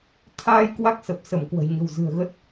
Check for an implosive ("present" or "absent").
absent